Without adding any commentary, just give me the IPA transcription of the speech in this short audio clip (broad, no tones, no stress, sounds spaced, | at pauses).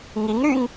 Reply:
ŋ i ŋ ɾ y ŋ